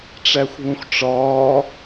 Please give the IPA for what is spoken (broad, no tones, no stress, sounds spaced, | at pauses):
ʈ͡ʂ æ xʷ β ũ xʷ ʈ͡ʂ ɒː